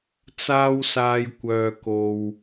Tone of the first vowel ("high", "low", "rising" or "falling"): high